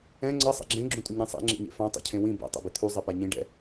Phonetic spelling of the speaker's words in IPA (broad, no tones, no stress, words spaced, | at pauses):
ɛ̃ ŋ͡ǀʌ sˤḛɡ͡ǁẽ ɡ͡ǁũtʼuɲɛ̃sˤḛ ŋ͡ǁḛɲḛfã tˤɛ̰cʰẽwĩ bɛ̰ tˤḛbit̪ʰu zˤɛpaɲĩ ɖɛ̰